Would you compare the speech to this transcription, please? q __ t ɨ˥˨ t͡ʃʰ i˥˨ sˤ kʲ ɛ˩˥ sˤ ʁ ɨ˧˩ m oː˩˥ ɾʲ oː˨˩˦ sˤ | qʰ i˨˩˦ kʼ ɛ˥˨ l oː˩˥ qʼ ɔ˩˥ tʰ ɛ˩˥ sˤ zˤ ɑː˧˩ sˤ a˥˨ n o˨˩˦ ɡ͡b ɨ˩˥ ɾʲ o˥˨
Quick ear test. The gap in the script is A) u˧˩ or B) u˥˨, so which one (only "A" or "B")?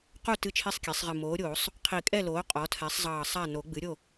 B